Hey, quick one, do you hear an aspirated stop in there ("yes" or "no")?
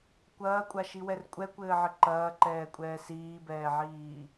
no